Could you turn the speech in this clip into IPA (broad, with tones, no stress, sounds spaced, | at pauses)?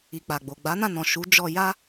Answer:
i˨ k͡p a˨ ɡ͡b o˨ ɡ͡b a˨˦ n ã˦˨ n ɔ̃˨ ʃ u˨˦ d͡ʒ ɔ˧ j a˦